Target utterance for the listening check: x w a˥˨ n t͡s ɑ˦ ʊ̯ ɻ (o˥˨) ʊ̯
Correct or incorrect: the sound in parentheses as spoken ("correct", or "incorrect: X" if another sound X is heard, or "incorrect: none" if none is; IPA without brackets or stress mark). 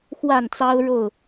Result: correct